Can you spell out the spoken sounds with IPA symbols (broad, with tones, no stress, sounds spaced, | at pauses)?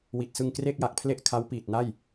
w i˨˩ t̚ s ɯ˧ ŋ k r e˥˩ k̚ j a˨˩ k̚ pʰ l e˥˩ ʔ kʰ a˦˥ w p iː˨˩ t̚ n a˥˩ j